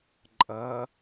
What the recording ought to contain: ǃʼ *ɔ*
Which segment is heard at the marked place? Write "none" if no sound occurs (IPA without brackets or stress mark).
ʌ